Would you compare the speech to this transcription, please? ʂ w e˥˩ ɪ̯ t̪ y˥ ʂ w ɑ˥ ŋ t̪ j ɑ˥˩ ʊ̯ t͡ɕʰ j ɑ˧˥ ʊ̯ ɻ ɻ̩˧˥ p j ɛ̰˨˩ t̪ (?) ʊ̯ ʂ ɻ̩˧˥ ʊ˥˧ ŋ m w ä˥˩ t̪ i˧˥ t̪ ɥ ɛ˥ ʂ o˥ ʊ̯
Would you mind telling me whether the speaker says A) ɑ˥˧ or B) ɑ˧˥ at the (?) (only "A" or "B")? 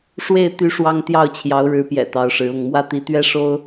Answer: B